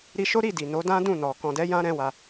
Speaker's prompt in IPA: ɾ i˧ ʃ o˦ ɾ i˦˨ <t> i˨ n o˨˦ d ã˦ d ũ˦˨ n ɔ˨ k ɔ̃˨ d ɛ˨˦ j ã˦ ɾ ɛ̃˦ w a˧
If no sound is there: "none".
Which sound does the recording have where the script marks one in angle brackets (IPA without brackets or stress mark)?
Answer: d